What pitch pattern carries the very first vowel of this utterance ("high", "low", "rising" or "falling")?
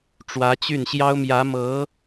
rising